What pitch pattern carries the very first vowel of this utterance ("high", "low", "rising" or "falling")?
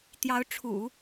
rising